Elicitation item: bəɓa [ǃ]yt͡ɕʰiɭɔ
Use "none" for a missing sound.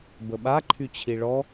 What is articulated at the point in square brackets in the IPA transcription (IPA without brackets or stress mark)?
ǃʰ